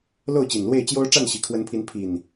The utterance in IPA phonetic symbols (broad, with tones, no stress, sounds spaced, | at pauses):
l o˥˨ ʊ̯ t͡ɕ i˨˩ n l w e˥˨ ɪ̯ t͡ɕ j o˦ ʊ̯ ʈ͡ʂ a˥˨ n ɕ i˨˩ kʰ w ə˨˦ n pʰ i˨˦ n pʰ i˨˩ n